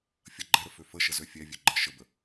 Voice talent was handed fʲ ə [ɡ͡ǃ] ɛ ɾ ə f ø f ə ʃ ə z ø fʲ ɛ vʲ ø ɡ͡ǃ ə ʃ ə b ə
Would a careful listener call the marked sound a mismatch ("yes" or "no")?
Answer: no